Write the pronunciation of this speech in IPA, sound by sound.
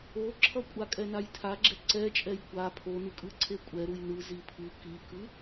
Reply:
o ǁʰ ʌ kʷʼ a kʼ ɛ n a j tʰ a ɡ͡ǁ ɛ ǀ ɛ t͡ʃʼ ɛ j kʷ a pʰ o n ɯ kʼ ɯ ǀʰ e kʷʼ ɛ ɾ u j n ɯ z i pʰ ɯ k i k ɯ

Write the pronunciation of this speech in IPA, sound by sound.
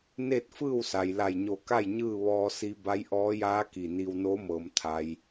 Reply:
n e˥˨ t̚ f ɯː˥˨ w s a˩ j l a˧˩ j ɲ o˧˩ k a˥˨ j ɲ ɯː˥˨ ʋ ɔː˧ s i˧ b a˧˥ j ʔ ɔː˧˥ j aː˧˥ k i˧˩ n i˧ w n oː˧˥ m ɤː˩ m t̪ʰ a˩ j

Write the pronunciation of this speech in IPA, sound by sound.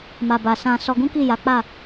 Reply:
m a˨ b a˨ s ã˧ s ɔ˧ ɡ ũ˦ k i˦˨ j a˨˦ k͡p a˦˨

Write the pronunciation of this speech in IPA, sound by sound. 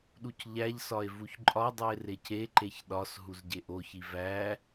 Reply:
ɗ u c ʎ æ ʎ s ɒ e̯ v u ç ǃʼ ɒ dˤ u e̯ r e c e ǃ e ç ɗ ɒ s ɦ u z ɟ e ʔ o ç i v æ

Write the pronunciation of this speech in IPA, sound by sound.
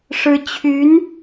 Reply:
ʂ ɻ̩˥ t͡ɕʰ y˧˥ n

